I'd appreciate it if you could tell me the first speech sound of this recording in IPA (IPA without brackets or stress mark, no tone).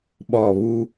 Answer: ɓ